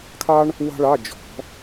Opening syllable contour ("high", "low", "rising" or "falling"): high